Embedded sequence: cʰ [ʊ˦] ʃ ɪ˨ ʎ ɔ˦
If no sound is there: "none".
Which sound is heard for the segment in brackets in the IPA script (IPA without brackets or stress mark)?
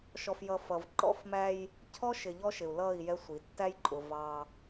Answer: ɔ˦